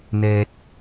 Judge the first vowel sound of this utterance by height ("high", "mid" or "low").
mid